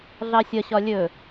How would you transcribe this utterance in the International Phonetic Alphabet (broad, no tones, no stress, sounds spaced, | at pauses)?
ɮ ɑ sʲ ʌ ɕ ɒ lʲ ɵ